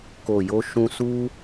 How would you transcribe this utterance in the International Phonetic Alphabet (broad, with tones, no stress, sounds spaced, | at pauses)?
k o˨ j o˧ ʃ ũ˧ s u˦